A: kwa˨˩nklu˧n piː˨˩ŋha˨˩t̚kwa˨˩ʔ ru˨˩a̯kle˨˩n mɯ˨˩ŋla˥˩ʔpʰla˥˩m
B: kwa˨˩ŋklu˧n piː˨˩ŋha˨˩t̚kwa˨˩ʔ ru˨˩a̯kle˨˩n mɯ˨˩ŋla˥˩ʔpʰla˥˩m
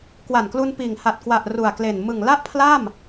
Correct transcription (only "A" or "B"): A